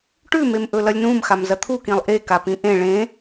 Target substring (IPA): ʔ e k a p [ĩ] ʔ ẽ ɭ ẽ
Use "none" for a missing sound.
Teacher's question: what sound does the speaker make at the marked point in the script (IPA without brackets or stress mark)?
ĩ